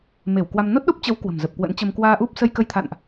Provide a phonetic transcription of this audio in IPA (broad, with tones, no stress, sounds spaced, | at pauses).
m e˧˩ w k w a˧ m n o˦˥ t̚ ɗ o˦˥ p̚ t͡ɕ ə˨˦ w k w ə̤˨˩ m z ə˨˩ p̚ k w ə̰˧˥ n t͡ɕ ə˧ m k w aː˧ ʔ u˦˥ p̚ s ə˧ j k ə˧ j t̪ʰ a̰˧˨ n ʔ